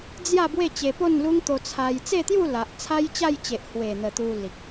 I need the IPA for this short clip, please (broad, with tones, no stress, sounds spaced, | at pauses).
d͡z j a˥˧ b w e˥˧ t͡ɕ e˧ p o˥˧ n l u˦ ŋ t̪ o˧ t͡sʰ a˧ j t͡s e˥˧ t̪ j u˥˧ l a˨ ʔ t͡sʰ a˦ j t͡ɕ a˥˧ j t͡ɕ e˨ ʔ h w e˨˩ n̪ ə˨˩ t̪ u˧ l i˨ k̚